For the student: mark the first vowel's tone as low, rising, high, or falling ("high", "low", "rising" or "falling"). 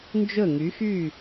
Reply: falling